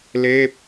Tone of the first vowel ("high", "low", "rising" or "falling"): falling